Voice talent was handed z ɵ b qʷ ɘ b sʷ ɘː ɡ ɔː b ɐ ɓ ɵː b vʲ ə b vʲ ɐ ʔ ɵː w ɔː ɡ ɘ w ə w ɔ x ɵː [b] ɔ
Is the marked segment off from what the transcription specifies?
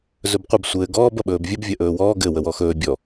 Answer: yes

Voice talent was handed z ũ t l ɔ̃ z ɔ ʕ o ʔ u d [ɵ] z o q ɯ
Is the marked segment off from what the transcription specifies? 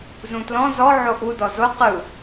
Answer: yes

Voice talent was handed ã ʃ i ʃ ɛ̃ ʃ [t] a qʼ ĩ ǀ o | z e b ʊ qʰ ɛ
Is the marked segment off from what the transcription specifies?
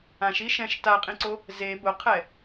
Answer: no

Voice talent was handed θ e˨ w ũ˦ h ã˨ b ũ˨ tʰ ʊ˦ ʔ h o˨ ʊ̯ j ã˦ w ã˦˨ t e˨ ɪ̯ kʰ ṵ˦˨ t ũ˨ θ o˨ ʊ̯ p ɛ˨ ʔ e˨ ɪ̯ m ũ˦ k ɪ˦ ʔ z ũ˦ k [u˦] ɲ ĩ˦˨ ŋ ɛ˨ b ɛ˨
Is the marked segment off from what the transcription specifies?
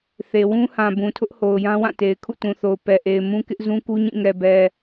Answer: no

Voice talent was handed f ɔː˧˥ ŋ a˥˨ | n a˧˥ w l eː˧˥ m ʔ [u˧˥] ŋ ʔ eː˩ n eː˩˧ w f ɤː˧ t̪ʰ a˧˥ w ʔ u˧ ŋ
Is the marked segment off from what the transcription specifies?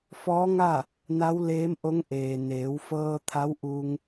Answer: yes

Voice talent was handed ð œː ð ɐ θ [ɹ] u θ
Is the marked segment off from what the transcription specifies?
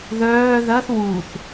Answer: yes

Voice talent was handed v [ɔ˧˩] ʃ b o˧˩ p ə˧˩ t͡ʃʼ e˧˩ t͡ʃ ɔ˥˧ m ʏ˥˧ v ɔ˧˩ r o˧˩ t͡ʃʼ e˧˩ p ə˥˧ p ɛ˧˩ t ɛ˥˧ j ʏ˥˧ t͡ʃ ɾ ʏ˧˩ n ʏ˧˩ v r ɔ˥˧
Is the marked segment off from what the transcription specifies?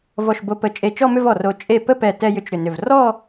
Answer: no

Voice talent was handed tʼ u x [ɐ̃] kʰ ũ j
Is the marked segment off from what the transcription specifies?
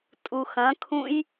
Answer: no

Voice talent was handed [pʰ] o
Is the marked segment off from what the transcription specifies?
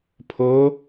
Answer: no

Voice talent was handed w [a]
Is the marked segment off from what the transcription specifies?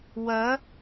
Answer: yes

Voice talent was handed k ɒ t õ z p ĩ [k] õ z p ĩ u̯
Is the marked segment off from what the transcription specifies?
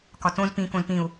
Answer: no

